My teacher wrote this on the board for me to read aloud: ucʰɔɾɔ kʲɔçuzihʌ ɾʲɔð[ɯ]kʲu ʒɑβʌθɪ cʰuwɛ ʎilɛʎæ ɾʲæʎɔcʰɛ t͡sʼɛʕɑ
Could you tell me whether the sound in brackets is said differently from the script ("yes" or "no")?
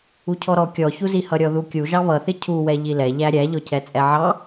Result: yes